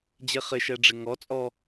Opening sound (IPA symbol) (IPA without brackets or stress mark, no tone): d͡ʑ